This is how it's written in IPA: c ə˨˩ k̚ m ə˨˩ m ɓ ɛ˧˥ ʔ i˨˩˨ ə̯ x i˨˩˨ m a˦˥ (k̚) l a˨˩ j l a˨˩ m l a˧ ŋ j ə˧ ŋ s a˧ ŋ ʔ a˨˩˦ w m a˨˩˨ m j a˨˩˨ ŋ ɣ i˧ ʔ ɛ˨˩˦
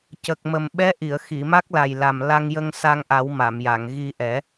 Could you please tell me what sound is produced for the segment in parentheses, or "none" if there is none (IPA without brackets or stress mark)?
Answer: k̚